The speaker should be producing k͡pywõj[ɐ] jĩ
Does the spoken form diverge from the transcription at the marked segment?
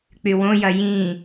no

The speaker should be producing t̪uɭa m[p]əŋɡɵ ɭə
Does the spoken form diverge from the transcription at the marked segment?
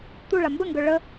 yes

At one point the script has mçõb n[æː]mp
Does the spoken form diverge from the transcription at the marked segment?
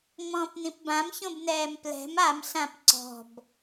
yes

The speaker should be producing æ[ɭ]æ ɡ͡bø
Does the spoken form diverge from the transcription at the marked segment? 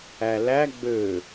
yes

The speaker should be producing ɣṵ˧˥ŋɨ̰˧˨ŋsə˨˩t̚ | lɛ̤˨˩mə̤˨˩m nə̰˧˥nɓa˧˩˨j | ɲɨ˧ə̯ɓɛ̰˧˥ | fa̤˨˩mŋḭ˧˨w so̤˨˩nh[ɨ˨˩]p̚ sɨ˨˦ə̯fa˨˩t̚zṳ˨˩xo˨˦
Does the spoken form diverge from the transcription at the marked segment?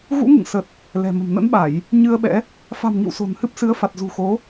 yes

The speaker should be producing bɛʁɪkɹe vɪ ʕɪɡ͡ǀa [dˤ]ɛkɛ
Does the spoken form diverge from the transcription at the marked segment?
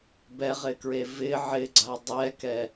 no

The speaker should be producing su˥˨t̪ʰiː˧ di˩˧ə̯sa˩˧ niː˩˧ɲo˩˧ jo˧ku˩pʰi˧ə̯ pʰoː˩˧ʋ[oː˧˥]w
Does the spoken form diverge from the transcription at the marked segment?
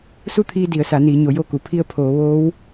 no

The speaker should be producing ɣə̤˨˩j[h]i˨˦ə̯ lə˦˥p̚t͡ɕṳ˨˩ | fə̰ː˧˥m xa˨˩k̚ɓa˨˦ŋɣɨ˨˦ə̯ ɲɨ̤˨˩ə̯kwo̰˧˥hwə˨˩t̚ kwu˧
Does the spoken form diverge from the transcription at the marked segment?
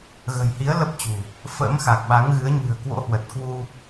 no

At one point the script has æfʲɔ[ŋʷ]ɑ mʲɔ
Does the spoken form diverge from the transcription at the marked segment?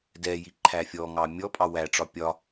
yes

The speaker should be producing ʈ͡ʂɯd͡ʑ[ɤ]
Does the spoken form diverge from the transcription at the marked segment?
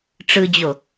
yes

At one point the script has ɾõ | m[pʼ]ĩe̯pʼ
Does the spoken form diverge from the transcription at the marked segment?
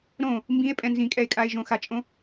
yes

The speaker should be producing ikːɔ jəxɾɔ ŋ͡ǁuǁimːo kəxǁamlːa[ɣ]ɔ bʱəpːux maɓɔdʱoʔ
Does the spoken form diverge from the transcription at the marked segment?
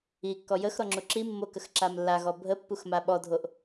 no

